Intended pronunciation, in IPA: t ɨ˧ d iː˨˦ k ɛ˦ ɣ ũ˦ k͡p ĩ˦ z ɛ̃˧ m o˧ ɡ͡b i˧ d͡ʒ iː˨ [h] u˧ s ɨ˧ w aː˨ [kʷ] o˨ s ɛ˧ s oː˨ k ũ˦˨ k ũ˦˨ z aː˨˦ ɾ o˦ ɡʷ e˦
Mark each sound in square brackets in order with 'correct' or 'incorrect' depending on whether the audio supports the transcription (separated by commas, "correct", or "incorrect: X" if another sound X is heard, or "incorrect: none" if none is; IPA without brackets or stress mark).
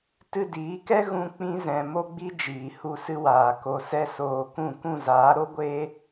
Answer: correct, incorrect: k